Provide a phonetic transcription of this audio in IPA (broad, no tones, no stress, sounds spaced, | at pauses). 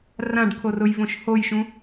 r ã ɖ kʰ o r ʊ j v õ ʃ h o j ʃ ũ